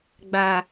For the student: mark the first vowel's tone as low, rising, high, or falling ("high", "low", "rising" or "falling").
low